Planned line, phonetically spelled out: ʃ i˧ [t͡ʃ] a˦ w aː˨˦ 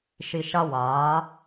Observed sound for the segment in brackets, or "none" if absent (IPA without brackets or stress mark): ʃ